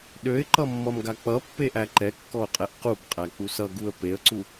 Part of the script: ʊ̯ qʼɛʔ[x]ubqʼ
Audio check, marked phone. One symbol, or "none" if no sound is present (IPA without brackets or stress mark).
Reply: q